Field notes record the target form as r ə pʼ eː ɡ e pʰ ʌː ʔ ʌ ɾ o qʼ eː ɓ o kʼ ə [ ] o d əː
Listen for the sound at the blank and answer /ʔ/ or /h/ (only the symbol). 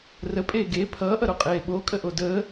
ʔ